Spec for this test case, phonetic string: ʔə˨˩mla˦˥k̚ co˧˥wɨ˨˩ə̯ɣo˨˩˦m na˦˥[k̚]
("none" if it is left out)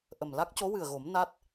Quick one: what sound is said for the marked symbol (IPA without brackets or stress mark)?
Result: t̚